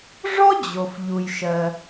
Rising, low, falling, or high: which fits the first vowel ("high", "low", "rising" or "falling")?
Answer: high